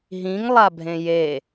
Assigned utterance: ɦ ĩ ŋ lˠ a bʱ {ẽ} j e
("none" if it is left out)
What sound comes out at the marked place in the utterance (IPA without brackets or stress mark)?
ẽ